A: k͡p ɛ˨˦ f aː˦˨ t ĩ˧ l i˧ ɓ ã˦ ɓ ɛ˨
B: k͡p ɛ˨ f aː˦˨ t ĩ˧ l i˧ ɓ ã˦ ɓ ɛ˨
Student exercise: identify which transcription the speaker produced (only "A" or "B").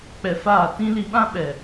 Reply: B